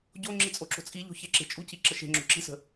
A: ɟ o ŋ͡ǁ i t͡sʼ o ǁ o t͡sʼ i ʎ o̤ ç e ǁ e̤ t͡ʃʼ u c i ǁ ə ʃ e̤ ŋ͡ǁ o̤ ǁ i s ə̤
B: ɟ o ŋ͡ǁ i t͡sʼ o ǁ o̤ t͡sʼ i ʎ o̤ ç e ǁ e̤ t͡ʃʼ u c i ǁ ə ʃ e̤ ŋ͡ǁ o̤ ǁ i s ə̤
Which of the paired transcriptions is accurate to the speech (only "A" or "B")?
B